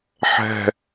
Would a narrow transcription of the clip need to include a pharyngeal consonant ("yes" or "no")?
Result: yes